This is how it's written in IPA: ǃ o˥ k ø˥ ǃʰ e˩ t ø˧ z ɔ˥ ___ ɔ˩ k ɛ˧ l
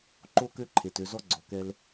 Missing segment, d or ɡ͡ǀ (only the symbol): ɡ͡ǀ